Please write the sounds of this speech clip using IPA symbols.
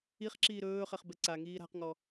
i χ ǁ iː ɾ ɵː χ ɛ χ b ɛ ǀ a ŋ iː ɾ a̤ q ŋ ɔ

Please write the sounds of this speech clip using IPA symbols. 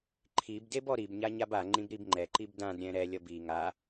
ǃʰ i b d e b ɔ ɾ i b ɲ a ɲ a b a ŋ͡ǃ ĩ b ɾ i b ŋ͡ǃ ɛ ǃ i b d ã d ɾʲ ɛ̃ ɾ ɛ lʲ ʌ b i ŋ a

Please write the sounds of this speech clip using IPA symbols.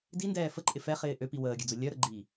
d i n d ɛː f ə ǃʼ ɪ f ɛ χ ɪː ʔ ø p i w əː ɡʲ ø d͡z ʊ lʲ œ ɾ ə ɡ͡ǃ iː

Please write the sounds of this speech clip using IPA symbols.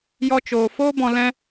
j ɔ˦ t͡ʃ oː˧ f oː˦ b ɔ̃˧ l ɛ̃˦

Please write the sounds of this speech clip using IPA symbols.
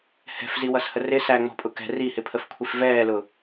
h ɛ̤ f z i w ʌ s h ə r ɪ s æ ŋ͡m ɔ̤ pʼ ʊ k ɛ̤ r i h ɪ pʰ ə f kʷʰ i f v ɛː l ʊ

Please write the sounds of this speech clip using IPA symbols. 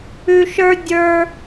ʉ˧ ʃ ə˞˦ dʲ ə˞˦

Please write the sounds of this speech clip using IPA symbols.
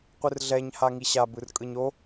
qʷ ɯ r ɮ ɛ ɲ h a ŋ i ɕ a b ɯ r kʼ ɯ ɲ o

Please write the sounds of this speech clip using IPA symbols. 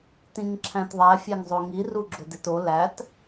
t ĩ ŋ ǁʰ æ̃ t ðˤ æ fʲ æ ŋ zˤ o ŋ i r u ɡ͡ǁ o d e t o l æ t

